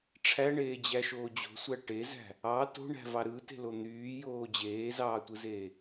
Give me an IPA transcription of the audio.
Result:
ʈ͡ʂʰ æ ɳ eː d͡ʑ æ ʃ oː d͡ʑ o̤ sʷ æ ʈ e z æ̤ | ɑ t o̤ ɳ æ̤ v ɑ ɾ ɯ t e̤ l o n̪ yː j oː d͡ʑ eː z ɑː tʷ ɯ z eː

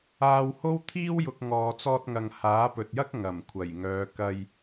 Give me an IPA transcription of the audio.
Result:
aː˧ w h o˥ w t̪ʰ iː˥ w j ʊ˨ k̚ ŋ ɔː˨ t͡s ɔː˧ t̚ ŋ ɐ˨ ŋ h aː˨˥ p ɵ˨ t̚ j ɐ˥ k̚ ŋ ɐ˨˩ m kʷʰ ɐ˨˩ j ŋ œː˨˧ k ɐ˧ j

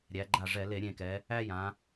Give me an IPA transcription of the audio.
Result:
ɾʲ æ˩˧ ɡ͡ǃ a˧˩ ʐ ɛ˧˩˧ l e˧˩˧ ɾʲ ẽ˧˩ k ɛ˩˧ | æ˦ j ã˩˧

